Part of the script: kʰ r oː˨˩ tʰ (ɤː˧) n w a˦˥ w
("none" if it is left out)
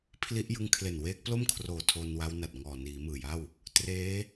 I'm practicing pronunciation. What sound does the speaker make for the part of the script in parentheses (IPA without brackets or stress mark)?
oː˧